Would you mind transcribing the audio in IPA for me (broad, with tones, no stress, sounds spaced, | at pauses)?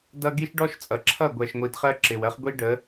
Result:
d ʌ˦ ɡ i˦ ʃ ɖ ɔ˦ ʃ t͡sʼ ʌ˨ ǁʰ ʌ˦˨ ɡʷ ɛ˨ ʃ ŋʷ i˨ d χ ɜ˦ ǁ ɪ˨ w ɜ˦ χ ɡʷ i˦ ɖ ə˨˦